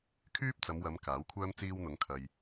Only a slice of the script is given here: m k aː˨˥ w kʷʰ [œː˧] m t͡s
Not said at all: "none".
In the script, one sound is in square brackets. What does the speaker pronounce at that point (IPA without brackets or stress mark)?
œː˥